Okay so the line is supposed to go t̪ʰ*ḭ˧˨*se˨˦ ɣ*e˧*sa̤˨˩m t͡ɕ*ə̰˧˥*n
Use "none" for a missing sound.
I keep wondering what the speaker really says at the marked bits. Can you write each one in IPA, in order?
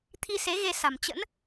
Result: i˧, e˧, ə̰˧˥

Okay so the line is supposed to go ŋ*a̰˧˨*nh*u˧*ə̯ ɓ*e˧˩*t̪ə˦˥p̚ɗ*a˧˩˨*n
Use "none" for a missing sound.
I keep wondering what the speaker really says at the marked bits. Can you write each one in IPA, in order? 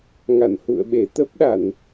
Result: a̰˧˨, ṵ˧˨, e˧˩, a˧˩˨

